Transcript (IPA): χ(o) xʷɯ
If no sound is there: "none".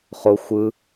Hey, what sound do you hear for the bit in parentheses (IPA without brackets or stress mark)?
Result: o